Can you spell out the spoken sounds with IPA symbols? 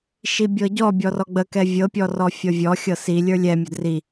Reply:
ʃ i bʲ ɤ ɟ ɔ bʲ ɔ r ɔ ɡ͡b ə k ɛ vʲ ɤ pʲ ɔ r ɔ fʲ ɤ vʲ ɔ xʲ ɤ s i lʲ ə˞ lʲ ɛ mʲ ə d r i

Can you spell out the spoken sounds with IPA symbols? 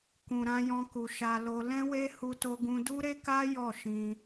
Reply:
k ũ˨ ɾ ã˧ j ɔ̃˧ k u˨ ʃ a˧ l o˧ l ɛ̃˦ w e˦ h u˦ t o˦ ɡ ũ˦ d u˦ ɾ e˦ k a˦ j ɔ˦˨ ʃ ĩ˧

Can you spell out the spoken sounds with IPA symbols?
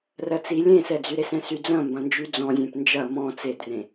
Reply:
r ɜ t͡s i lʲ ẽ s ɛ d͡z y ɾ e s ɛ̃ s y d͡z ɐ̃ m b ɐ̃ n d͡ʒ y d͡z ɔ̃ zʲ ẽ p n d͡ʒ ɐ m ɔ̃ t͡s e d r ẽ

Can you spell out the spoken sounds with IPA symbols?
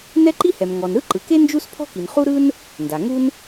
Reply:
n ɛ˥ ǃ i˥ h ɛ˩ m ŋ ɔ˩ n ɾ ɯ˥ ǃ ɯ˩ k e˥ n d͡ʒ u˥ s pʰ ɔ̤˥ k i˩ n χ u˥ ɾ ɯ˥ n | n d a˩ ŋ u˥ n

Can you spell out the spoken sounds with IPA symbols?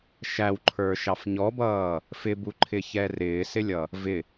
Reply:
ʃ æ w ǃʰ ə˞ ʃ ɑ f ɲ ɔ b ʌː | f ɪ b u ǃʰ ɪ ç ɛ r ɪː s ɪ lʲ ʌ | v ɪ

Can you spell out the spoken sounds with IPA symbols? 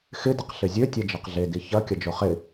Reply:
x ɪ d ɪ q ɬ ɪ zʲ ø tʲ ɛ d͡ʒ ɛ q ɮ e d i ç ɐ kʲ ɐ d͡ʒ o χ ɪ

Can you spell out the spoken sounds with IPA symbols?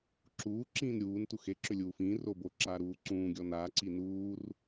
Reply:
ǁ uː ǁ ĩː n ɾʲ uː n t u x e ǁ ʏ lʲ uː f ĩː r o b o ǁ aː ɾ uː ǀ ũː ɡʲ ɔ n aː ǀ i n uː r

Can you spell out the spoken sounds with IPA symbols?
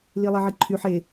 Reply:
l i lˠ e ʕ i ǃʰ y ħ e

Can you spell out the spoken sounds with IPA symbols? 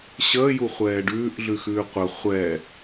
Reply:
ɕ əː j u χʷ ɛː ɖ ʉː ʔ ɮ ʉ x ʉː qʷ ə χʷ ɛː

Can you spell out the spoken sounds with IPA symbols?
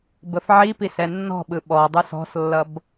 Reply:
b ə f ʕ i p i s ɛ nː ɔ̤ ɓ ɯ ɓ ɔ dˤ u s ɔ̤ s lː ʌ b

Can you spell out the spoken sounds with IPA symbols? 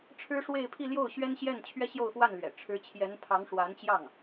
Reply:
ʈ͡ʂʰ ɻ̩˥ ʂ w e˥˧ ɪ̯ pʰ i˥˧ l j o˥˩ ʊ̯ ɕ ɥ ɛ˥ n ɕ j ɛ˥˩ n t͡ɕʰ ɥ ɛ˥ ɕ j o˥˧ ʊ̯ x w a˥˩ n l ɥ ɛ̰˨˩ ʈ͡ʂʰ ɻ̩˧˥ t͡ɕʰ j ɛ˧˥ n pʰ ɑ˧˥ ŋ ʂ w a˧˥ n t͡ɕ j ɑ˥˩ ŋ

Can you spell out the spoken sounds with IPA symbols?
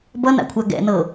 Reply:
b ʌ n a̰ kʷʰ a ɡ ɛ̰ n ɤ

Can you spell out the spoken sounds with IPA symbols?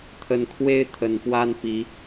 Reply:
t̪ʰ ə˨˦ n kʰ w e˦ ɪ̯ t̪ʰ ə˨˩ n p w a˦ n p i˨˦

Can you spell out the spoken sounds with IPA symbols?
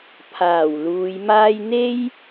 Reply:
pʰ aː˨˩ w l uː˨˧ j m aː˥ j n̪ e˥ j

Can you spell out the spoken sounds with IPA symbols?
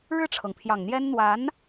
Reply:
ɻ ɻ̩˥˩ ʈ͡ʂʰ ɤ˩ ŋ pʰ j ɑ˨˩ ŋ n̪ j ɛ˥ n n̪ w a˧˥ n

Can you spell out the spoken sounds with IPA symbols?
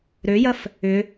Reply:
ɾ ø j ɐ f | ʏ

